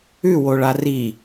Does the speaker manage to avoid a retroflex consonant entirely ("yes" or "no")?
no